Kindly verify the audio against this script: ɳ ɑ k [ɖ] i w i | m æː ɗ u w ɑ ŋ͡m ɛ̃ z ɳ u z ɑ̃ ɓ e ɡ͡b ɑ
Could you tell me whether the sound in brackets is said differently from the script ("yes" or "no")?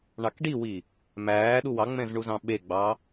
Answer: no